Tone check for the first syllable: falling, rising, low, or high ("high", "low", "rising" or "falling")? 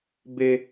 high